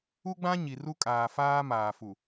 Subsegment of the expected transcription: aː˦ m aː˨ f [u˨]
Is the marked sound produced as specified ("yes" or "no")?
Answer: yes